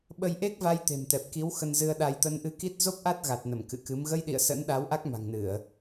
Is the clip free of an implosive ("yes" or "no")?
no